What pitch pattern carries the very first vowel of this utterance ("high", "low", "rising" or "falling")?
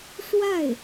falling